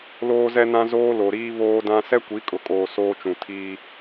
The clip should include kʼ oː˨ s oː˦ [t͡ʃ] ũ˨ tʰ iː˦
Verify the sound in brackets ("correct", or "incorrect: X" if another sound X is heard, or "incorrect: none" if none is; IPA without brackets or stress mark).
correct